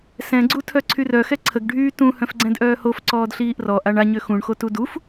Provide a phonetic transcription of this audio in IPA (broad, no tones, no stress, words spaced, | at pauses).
sɛ̃ɡ͡ǀu tʰœǀʰyrœ xɛǀʰəɡɖʱyː tũ hœ̃fɡ͡ǀɛ̃dʔœːhof ǀɔːdɬiːʔrɔ ʔaɳaɲø xũɳxotu duf